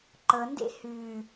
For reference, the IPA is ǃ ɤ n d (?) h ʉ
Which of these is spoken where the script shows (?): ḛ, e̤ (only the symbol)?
ḛ